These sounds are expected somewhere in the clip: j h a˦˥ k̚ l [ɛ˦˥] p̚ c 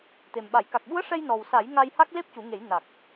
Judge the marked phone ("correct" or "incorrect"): incorrect